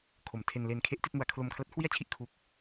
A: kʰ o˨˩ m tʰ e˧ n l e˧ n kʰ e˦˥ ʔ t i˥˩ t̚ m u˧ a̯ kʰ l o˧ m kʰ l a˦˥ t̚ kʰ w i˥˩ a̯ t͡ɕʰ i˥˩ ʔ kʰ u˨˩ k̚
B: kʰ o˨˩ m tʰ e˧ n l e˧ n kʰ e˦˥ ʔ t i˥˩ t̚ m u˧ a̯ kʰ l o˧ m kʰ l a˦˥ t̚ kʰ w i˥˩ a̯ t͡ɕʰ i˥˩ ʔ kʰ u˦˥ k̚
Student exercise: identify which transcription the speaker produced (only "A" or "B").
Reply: B